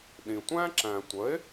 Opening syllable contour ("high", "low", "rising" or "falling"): low